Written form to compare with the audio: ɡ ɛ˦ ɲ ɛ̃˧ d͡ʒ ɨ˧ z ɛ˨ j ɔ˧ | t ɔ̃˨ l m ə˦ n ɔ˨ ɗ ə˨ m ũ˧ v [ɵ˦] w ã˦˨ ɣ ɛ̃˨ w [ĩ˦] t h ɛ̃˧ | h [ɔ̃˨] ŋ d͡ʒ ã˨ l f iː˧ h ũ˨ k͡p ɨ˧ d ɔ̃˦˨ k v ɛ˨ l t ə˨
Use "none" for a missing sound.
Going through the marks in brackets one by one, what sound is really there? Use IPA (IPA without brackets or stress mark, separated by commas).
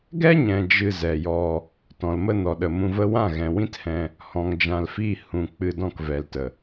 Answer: ə˦, ĩ˦, ɔ̃˨